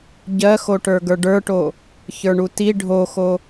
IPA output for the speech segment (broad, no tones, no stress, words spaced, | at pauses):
ɟɜxoʈə˞ ɡə˞ɖə˞ʈo | çə˞ɳuti ɖʱoxo